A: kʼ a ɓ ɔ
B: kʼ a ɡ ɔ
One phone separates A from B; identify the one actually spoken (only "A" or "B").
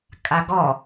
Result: B